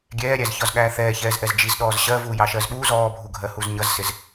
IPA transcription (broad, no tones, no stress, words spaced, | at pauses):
ɡʲɛːɾʲæz çɒzɠæːθɛːçɛːz ʔɛzd͡ʒiz ɗɔːzɕɜ vuːjɑʃɜzɓuːz ɔːbʱuɡʱɜ huzɲʌzsɪz